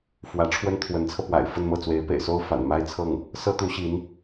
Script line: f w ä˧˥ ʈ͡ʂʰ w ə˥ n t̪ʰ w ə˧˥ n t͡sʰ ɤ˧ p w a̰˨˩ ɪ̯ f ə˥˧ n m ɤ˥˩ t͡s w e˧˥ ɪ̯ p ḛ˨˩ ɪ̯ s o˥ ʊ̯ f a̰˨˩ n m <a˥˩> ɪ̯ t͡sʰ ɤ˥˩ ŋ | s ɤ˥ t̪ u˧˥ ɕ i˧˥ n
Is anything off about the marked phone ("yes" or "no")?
yes